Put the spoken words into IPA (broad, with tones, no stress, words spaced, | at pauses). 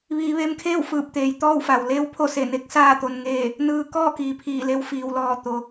ʋiː˩˧ʋeː˧mkʰeː˥˨w fɯː˧˩p̚t̪eː˩j t̪ɔː˥˨wfa˩w leː˧˥wpʰo˥˨ se˧˩ne˧˥k̚ saː˥˨t̪o˧n ŋeː˥˨ | nɯː˧kɔː˥˨ kiː˩pʰiː˧˩le˧w fiː˩wlɔː˧˩ t̪o˩˧